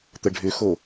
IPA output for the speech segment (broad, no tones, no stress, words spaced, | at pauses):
t̪əɖʱʏxo